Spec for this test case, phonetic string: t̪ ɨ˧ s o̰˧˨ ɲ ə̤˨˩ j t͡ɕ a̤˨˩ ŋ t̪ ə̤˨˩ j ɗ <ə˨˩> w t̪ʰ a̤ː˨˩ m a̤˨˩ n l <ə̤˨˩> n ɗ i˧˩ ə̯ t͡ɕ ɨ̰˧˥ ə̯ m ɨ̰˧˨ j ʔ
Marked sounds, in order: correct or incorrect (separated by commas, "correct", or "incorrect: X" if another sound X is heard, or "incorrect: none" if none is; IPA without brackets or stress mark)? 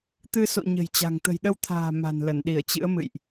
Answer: incorrect: ə˧, incorrect: ə˧˩